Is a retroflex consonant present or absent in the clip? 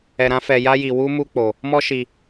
absent